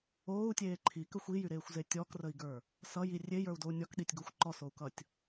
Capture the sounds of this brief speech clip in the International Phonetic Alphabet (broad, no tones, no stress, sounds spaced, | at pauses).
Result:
oː u̯ tʲ eː ǃʰ i k ə xʷ i j y ɾ eː xʷ z e tʲ ɔ k r ə i̯ ɡ ə˞ | s ʌ j i rʲ e j ə˞ u̯ d o u̯ nʲ ɔ k ɗ i tʲ ɡ o xʷ ǃ ɔ s o u̯ k ʌ tʲ